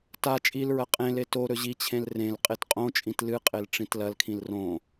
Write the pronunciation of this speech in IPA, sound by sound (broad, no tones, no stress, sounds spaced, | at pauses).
t a t͡ʃʼ i l ɹ ɐ qʼ ẽ l e t o ɾ ɵ ʑ i t͡ɕʰ ẽ l r ẽ l qʼ e t qʼ õ t͡ʃʼ ĩ t l ɨ qʼ e l ʈ͡ʂ ĩ t l ɐ l kʰ ĩ l r õ